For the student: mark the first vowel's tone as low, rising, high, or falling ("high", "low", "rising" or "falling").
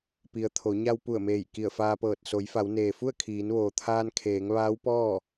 low